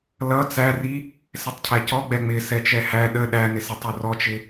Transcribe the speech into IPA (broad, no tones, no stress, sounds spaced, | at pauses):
l ʌ t͡s æ r i | s ɛ tˤ cʰ æ c ɔ ɡ͡b ɛ ŋ͡m ɪ s ɛ t͡ʃ ɛ h æ ɗ ə ɗ æ n ɪ s ə tˤ ɒ r ɔ t͡ʃ ɪ